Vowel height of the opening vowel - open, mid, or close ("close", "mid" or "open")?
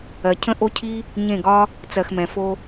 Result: mid